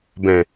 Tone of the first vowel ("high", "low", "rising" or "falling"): low